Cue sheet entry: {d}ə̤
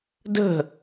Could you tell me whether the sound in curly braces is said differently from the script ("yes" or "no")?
no